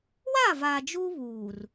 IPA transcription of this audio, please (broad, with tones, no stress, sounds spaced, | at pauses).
w a˦˨ v aː˨ d͡ʒ uː˦ β uː˨ r